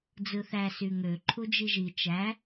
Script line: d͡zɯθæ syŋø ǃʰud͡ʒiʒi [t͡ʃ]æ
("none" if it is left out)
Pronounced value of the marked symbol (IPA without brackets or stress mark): t͡ʃ